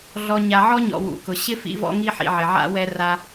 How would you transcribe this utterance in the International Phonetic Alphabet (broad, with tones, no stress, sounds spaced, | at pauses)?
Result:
ɮ ɔ˨ ɲ a˨ ʕ ɔ˥ ɲ ɔ̰˨ w ṵ˩ k ʊ˩ ɕ ɪ˥ f ḭ˦ v ɔ̰˦ ŋ i˦ ħ ḭ˨ ʕ ɪ˩ ʕ a̰˥ w ɛ˦ r a˦